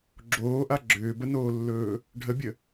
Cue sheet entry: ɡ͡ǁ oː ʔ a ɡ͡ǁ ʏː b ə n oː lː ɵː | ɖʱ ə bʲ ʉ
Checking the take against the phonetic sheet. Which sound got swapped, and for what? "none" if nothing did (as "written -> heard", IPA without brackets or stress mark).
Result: ʉ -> ə